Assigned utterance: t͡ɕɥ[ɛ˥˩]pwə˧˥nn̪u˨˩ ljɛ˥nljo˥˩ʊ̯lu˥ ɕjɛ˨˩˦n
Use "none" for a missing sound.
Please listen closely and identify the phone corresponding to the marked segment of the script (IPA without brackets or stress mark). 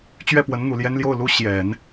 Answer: ɛ˥˩